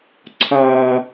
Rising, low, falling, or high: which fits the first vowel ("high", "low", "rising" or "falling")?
high